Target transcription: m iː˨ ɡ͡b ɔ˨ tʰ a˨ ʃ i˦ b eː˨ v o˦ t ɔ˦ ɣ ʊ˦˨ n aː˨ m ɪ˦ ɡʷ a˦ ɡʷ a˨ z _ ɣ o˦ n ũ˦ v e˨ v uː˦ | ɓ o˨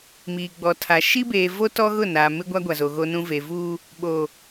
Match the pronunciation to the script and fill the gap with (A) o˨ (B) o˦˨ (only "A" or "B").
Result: A